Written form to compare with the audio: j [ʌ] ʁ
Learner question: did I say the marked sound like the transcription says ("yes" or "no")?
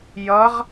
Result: yes